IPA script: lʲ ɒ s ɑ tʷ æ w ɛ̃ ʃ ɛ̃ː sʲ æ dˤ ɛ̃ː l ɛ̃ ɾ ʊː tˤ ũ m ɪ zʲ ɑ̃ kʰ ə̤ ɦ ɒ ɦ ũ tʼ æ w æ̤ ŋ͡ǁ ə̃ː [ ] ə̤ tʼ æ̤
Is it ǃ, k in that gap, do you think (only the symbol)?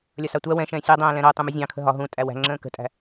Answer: k